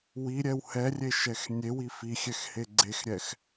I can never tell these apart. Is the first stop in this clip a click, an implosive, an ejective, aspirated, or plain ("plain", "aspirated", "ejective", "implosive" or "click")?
click